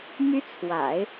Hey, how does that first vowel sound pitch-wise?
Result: high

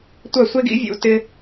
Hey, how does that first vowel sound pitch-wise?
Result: falling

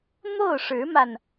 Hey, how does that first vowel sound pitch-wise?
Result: falling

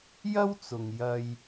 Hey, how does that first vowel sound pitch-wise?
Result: high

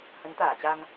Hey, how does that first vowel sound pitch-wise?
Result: rising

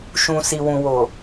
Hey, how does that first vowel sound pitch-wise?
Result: low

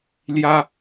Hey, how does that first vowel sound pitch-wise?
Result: high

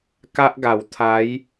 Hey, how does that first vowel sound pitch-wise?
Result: high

